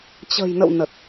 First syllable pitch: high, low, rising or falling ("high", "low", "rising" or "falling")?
low